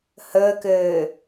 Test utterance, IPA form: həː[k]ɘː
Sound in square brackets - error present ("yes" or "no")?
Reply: no